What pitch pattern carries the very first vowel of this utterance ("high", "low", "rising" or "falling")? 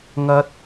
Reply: rising